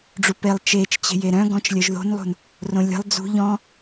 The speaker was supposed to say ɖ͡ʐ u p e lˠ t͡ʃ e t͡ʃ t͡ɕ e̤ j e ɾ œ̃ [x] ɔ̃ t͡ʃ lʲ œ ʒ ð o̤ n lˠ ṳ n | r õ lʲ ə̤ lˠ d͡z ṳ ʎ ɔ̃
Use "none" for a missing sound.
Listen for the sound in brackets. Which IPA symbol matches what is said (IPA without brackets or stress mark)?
ɡ